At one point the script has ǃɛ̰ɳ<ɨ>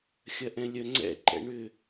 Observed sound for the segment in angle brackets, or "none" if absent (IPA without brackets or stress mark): ʏ